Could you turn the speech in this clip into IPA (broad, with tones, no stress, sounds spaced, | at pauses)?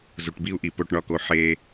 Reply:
z u˨ ʈ b i˦ u̯ ʔ i˨ p o˨ ʈ ɳ ɒ˨ k o˨ ħ e˦